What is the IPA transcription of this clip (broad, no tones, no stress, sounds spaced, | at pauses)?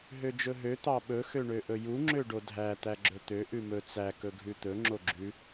ɦ ø d͡ʒ ɵ ɦ ø t̪ ɑ ɓ ɵ x ø ɳ ø ʔ ɵ j u ŋ͡ǁ ø ɖ o dʱ æ t̪ æ ɡ͡ǁ ɵ t̪ ø ʔ ʉ m ɵ t͡s æ k ɵ ɡʱ ʉ t̪ ɵ ŋ͡ǁ o ɡ͡ǁ ʉ